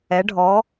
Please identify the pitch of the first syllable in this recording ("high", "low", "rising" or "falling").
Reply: rising